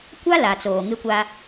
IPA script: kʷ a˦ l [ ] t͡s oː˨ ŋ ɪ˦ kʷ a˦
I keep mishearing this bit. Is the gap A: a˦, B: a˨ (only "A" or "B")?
B